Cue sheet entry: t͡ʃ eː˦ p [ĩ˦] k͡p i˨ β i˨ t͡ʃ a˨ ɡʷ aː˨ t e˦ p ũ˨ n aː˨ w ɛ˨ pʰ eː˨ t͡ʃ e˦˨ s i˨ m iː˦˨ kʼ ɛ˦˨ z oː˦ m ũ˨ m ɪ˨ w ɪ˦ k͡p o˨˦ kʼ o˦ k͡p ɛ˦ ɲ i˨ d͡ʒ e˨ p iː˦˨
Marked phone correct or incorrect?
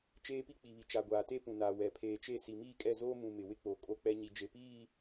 incorrect